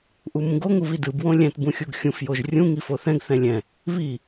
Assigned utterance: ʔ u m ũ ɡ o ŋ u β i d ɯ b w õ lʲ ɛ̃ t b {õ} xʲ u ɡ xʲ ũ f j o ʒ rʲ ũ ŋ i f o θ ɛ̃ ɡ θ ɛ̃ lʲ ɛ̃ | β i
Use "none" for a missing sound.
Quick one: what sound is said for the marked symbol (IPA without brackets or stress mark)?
ũ